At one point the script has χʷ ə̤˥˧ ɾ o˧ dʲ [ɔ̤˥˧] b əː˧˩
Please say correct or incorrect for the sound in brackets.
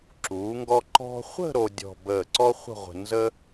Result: correct